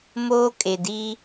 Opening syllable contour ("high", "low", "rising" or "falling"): high